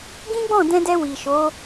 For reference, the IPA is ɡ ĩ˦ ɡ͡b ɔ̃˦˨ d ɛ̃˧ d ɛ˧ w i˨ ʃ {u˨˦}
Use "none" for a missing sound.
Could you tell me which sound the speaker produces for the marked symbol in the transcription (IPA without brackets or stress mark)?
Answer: o˨˦